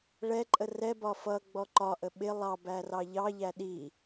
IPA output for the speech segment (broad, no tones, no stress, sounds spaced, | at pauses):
ɭ ɛ ǃʼ ə r ɛ b ɒ f ʌ ɡ͡b ɔ ǃ ɒ ʔ ə ɓ ɪ lˠ ɑ b æ r ɑ ʎ ɑ ʎ æ ɗ i